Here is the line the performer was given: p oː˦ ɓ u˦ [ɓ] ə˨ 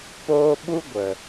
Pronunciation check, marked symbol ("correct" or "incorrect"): incorrect